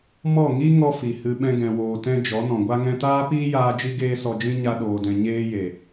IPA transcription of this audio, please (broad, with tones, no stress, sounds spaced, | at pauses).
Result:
m ɔ˦˨ ŋ i˦ ŋ ɔ˦ f i˨ h ɨ˧ ɓ ɛ̃˦ ɡ ɛ̃˧ w oː˧ t ɛ̃˦ d͡ʒ ɔ˨˦ n ɔ̃˨ ɡʷ a˦ ŋ ɛ̃˧ t aː˦ p iː˦ j aː˧ d͡ʒ i˦ ɡ eː˦ s ɔ˧ d͡ʒ ĩ˦ ɲ a˧ ɗ oː˨ d ɛ̃˨ ɲ eː˧ j e˨